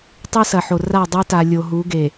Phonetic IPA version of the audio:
tˤɨ˦sɐ˨ħo˨ ra˦˨dˤu˦ta˨ lʲo˨ɦu˨˦ɡe˨

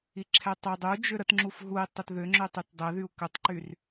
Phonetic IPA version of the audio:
iǁʰɛtˤʏ dˤud͡ʒʏ ɾətŋ͡ǁuf ɦui̯ tˤətðʏŋ͡ǁʏtˤyt dˤɛðyu̯ kətˤǃyr

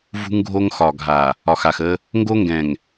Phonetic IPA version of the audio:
vṳ˦ŋɡʱo˦ŋxɒ˨ɡʱa˨ | ɒ˨xa˨x ə˦ | ŋɡo˦ŋɡɛ̃˨ŋ

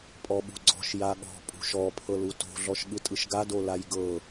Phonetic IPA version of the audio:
pʼɔɓṳɡ͡ǀɔ̤ʃ jaɠɔ̤ pʼṳʃɔ pʰɤluto̤ ɮɔʃɠɯtʼɯʃɡa dolajɡɤ

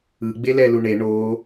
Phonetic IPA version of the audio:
ɯ ɡ͡belɛluɳe ɳo

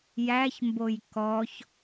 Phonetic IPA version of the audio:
jæçmboj kɔç

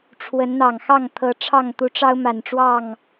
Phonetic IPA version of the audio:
ʈ͡ʂʰwə˨˦nn̪ɑ˨˩ŋxɑ˥˨ŋ t̪ʰɤ˨˦ʈ͡ʂʰɑ˥˨ŋ t̪u˨˦ʈ͡ʂɑ˦ʊ̯ma˨˩nʈ͡ʂwɑ˥˨ŋ

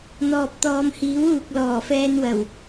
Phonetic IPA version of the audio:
n̪ɔː˨p̚t̪ɔː˨mhiː˨˥w uː˨k̚lɔː˨˩fɛː˧nwɐ˨˩w

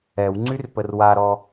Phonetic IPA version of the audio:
ɛwŋ͡ǀyr pərwaɾɔ

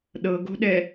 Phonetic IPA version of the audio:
ɗɤɡo̤ɗɛ

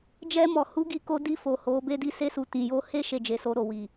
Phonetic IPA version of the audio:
d͡ʒɛ˧mɔ˨hu˨˦ ɡi˧ko˧di˧ fo˨ ho˨˦be˦ di˧se˧su˨ tĩ˨jo˧he˦ ʃe˦˨d͡ʒe˨˦so˧ ɾo˨wi˨

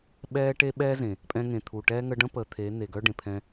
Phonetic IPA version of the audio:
ɓɛː˦ ʈe˦ɓɛː˦zẽ˨ | pʼɛ̃˧ŋẽ˨t̪ʰu˨ʈɛː˦ ŋə˧ɖə̃˦pəː˨ t̪ʰe˨˦n̪e˨ ɡœ˦ɖẽ˨pʰɛ̃˧

